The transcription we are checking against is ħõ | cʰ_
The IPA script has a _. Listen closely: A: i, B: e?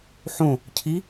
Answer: A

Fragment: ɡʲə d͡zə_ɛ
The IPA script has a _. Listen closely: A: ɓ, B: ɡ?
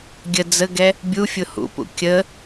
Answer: B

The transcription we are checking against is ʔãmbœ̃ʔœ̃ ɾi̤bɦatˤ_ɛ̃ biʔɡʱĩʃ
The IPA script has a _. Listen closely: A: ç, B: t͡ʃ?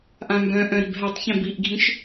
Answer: A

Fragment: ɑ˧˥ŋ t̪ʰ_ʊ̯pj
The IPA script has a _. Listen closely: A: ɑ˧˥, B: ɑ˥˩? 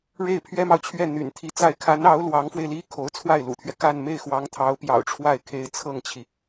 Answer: A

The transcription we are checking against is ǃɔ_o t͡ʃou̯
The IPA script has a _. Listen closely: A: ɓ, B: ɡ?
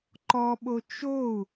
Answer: A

